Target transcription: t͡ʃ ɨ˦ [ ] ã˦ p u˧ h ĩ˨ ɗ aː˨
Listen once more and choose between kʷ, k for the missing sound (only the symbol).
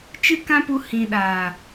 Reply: k